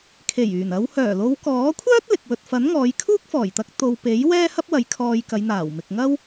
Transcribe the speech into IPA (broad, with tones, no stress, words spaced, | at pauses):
kʰe˨˩jyː˨˩nɐ˨˧w hœː˨˩lo˨˧wkɔː˨˥kʷʰœː˥t̚ lɪ˨k̚ wɵ˨t̚fɐ˨˥n ŋɔː˨˧jkʰuː˥k̚fɔː˨˩jt̪ɐ˧k̚ t̪o˨wpe˨˥j wɛː˥hɐ˥p̚wɐ˨˥j kʰɔː˧jkɐ˨˧j n̪aː˨˩wmɪ˨k̚ŋɐ˥w